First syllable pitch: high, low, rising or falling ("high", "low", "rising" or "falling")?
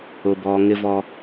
low